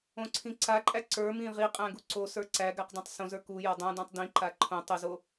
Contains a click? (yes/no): yes